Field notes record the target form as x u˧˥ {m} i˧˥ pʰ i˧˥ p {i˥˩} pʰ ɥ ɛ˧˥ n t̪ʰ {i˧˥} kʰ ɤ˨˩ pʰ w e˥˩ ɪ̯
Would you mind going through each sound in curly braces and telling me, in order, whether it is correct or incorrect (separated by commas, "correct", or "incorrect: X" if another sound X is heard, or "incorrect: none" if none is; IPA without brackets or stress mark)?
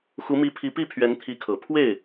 correct, correct, correct